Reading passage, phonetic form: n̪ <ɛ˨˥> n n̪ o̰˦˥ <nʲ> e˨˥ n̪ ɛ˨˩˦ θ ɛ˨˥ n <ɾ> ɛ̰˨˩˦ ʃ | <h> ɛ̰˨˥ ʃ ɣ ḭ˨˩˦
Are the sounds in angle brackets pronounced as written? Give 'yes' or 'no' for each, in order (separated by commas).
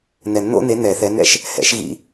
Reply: no, no, yes, yes